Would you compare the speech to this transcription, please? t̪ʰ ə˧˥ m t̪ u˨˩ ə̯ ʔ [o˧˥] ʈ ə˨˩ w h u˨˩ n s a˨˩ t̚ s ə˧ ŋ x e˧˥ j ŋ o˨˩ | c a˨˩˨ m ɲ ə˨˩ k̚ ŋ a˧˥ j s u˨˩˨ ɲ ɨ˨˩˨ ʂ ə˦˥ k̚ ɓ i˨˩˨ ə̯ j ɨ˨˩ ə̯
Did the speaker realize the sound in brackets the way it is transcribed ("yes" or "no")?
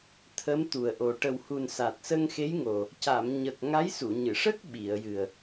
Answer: no